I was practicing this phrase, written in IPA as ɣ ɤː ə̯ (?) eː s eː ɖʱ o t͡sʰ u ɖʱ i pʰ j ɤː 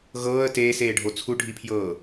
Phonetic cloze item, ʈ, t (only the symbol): t